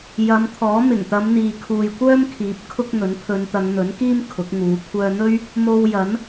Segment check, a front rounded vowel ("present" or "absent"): present